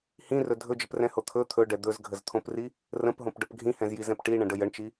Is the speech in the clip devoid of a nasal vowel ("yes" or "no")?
no